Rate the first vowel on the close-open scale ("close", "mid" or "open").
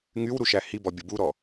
close